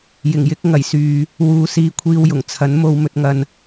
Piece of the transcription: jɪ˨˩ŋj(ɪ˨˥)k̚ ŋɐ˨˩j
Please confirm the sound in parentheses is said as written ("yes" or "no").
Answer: yes